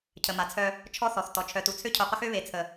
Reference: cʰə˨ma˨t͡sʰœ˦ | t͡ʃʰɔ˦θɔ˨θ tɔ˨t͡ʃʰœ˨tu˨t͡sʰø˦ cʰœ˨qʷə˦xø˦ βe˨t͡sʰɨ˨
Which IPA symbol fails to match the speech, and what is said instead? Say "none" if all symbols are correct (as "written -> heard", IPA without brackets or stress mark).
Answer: ɨ˨ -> ə˨